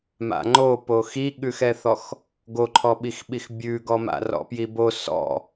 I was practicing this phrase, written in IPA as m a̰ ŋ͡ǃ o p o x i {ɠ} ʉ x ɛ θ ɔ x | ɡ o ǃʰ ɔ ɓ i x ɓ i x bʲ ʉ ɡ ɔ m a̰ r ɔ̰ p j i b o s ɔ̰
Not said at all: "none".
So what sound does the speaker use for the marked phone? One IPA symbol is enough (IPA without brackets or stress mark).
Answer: ɠ